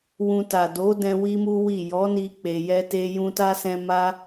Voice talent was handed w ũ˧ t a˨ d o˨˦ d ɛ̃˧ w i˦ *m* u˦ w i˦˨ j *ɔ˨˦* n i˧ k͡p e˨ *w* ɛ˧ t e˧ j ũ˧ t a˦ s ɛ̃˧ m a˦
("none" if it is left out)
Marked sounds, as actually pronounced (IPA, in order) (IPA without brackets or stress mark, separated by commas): m, ɔ˨˦, j